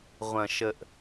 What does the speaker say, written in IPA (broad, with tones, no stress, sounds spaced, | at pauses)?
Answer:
ʁʷ ɐ̃˨ ʃ ə˨ ʔ